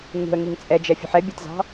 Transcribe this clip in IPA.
ŋ ṳ ə̯ ŋ i ŋ t͡sʼ ɛ d͡ʒ ɛ fʲ ṳ ħ ɛ bʲ ɛ t z ɑ̤

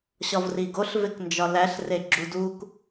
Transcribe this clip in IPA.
ɕ ɒ v r i ɡ o ɬ v e k n d͡ʒ ɒ l æ ɬ r e ɡ͡ǁ u d u k

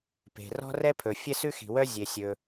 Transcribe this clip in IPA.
p e̤˩ r ɔ̤˥ r ɛ˥ pʰ ɵ˩ fʲ ɛ˥ s ʉ˥ x i̤˩ w œ˥ zʲ e˩ sʲ ɵ˩

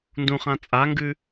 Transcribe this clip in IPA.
n d ũ χ ã t͡sʼ a ŋ ɡ ʉ

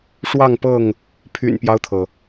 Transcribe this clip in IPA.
ʂ w ɑ˥˨ ŋ p ɤ˥˨ ŋ | pʰ y̰˨˩ n p j ɑ˦ ʊ̯ t̪ʰ ɤ˩

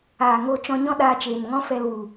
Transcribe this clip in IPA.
aː˨ ŋ o˧ t͡ʃ ɔ̃˧ ɲ ɔ̃˦ ɗ aː˧ t͡ʃ eː˨ n ŋ ɔ̃˦ f ɛ˧ l w u˨

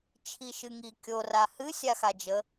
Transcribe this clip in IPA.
t͡ʃʰ i ʃ ɨ ŋ i kʲ o r a h ɨ sʲ a x a d͡ʒ ə

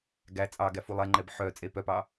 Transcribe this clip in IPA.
ɡ æ t͡sʼ ɑ ɡ æ f u lˠ ɛ ŋ͡ǃ ɛ b ħ œ t͡sʼ e p œ p ɑ

